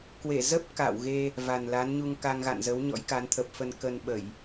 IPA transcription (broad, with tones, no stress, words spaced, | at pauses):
kwe˧˩ zə˦˥p̚ ka̰ː˧˨wɣe˧ | va˨˩nla˨˦nɲu˧ŋka˧ŋ ɣa̰˧˨nzə˨˦wɲɔ̰˧˥jka˨˦n t̪ʰə˨˩p̚fə˧n kə˧nɓə˧˩˨j